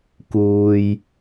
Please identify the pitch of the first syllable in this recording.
low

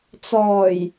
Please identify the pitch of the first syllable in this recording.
low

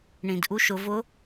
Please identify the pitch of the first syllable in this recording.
low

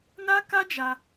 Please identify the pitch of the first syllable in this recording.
high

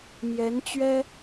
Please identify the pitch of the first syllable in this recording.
rising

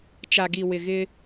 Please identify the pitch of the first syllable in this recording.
low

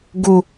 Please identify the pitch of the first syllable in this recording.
low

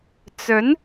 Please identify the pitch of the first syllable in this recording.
rising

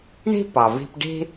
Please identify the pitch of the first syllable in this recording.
high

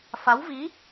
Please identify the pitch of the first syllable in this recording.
rising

